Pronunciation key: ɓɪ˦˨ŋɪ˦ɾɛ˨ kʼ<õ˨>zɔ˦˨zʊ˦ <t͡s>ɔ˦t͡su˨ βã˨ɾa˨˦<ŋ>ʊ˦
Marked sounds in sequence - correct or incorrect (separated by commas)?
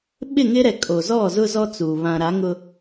incorrect, incorrect, correct